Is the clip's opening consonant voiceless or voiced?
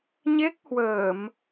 voiced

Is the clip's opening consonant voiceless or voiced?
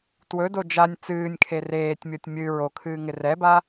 voiceless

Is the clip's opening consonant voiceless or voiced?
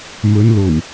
voiced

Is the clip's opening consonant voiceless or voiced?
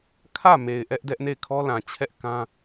voiceless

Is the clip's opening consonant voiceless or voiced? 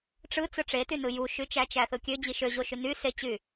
voiceless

